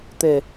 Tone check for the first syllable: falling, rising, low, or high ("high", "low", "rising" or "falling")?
low